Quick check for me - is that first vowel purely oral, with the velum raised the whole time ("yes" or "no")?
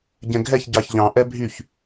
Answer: no